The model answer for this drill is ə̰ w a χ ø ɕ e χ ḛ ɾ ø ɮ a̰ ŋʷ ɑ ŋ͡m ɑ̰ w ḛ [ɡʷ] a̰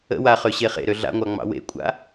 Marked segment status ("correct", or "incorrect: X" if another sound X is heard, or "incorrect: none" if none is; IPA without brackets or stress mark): incorrect: kʷʼ